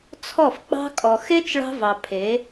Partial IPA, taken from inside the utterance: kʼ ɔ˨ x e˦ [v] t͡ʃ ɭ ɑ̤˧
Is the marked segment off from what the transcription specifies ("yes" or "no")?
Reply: yes